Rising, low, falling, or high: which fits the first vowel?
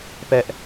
high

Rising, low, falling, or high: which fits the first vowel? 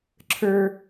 high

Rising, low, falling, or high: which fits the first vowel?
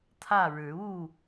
falling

